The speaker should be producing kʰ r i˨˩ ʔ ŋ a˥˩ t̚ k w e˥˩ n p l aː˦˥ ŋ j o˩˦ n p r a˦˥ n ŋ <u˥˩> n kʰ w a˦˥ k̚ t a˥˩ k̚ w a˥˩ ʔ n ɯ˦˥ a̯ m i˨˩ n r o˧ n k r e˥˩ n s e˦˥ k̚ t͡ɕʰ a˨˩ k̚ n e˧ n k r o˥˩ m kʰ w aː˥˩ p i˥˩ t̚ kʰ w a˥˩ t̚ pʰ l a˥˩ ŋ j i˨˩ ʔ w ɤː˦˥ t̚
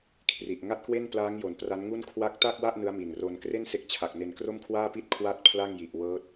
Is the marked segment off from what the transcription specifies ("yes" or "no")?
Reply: no